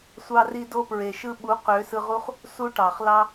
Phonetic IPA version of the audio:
sʷ ɑ˧ r i˧ d o˦ p ɹ e˨ ʃ ɯ˦ ɓ u˨˦ q ø˨˦ s ɯ˧ ʁ u˦ χ | s u˦ ʈ ɑ˨ χ l ɑ˦

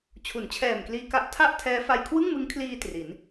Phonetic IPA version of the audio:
t͡ɕʰ u˩˦ n t͡ɕʰ ɛː˨˩ m k l iː˧ k a˦˥ ʔ tʰ a˥˩ ʔ tʰ ɛː˦˥ f a˧ j kʰ w ɯ˥˩ ŋ m ɯ˦˥ ŋ kʰ l iː˧ t r i˩˦ n

